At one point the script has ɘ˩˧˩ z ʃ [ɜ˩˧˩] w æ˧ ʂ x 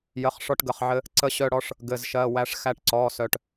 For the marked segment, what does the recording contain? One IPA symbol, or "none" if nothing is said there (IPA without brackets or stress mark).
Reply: ɜ˩˧˩